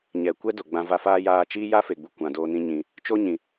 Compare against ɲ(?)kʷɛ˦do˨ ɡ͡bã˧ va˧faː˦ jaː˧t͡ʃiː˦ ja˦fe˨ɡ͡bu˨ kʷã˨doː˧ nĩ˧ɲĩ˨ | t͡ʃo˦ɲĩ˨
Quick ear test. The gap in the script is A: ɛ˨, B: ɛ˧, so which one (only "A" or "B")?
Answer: A